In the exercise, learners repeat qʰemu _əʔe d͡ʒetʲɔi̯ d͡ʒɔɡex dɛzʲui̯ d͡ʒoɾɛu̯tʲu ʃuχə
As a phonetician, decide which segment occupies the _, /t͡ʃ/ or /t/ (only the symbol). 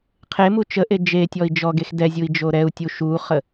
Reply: t͡ʃ